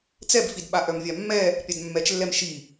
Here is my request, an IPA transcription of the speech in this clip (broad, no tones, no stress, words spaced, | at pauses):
t͡sɛbfidɓa ʔœmvʲamːɛ | pʲadmːɛt͡ʃlːɛm ʃi